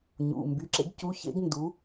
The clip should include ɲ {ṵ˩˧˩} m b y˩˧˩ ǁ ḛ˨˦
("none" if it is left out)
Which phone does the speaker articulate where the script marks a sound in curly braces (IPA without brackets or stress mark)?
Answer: ṵ˩˧˩